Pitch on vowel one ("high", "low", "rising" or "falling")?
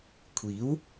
rising